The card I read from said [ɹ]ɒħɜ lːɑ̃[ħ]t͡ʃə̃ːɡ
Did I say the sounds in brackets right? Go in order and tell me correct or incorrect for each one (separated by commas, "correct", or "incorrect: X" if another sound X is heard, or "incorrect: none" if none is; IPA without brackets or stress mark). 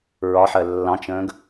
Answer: correct, incorrect: none